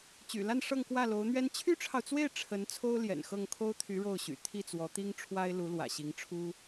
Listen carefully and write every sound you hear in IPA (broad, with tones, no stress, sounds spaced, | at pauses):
t͡ɕ y̰˨˩ l a˥˧ n ʂ ɤ˥˧ ŋ k w ä˥˩ l o˧˥ ʊ̯ n̪ ɥ ɛ˥ n t͡ɕʰ y˥ ʈ͡ʂʰ ɑ˨ ʊ̯ t͡s w e˥˩ ɪ̯ ʈ͡ʂʰ ə˧˥ n t͡sʰ o˥ ʊ̯ l j ɛ̰˨˩ n x ɤ˥˩ ŋ kʰ o˥ ʊ̯ t̪ʰ y˧˥ ɻ o˥˩ ʊ̯ ɕ y̰˨˩ t̪ʰ i˥˩ t͡s w ɔ˧˥ t̪ i˥ ŋ ʈ͡ʂʰ w a˥ ɪ̯ l u˧˥ l w ä̰˨˩ ɕ i˧˥ ŋ ʈ͡ʂʰ u˥